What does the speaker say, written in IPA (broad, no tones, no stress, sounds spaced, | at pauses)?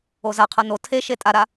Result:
o z a qʰ ʌ n o tʰ e ʃ e tʼ a ɾ a